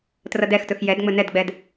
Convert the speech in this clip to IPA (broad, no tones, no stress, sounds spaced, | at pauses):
t r ʌ d ɛ x t ɵ x j ɛ d ŋ͡m ɵ n ɛ d ɡ͡b ɛ d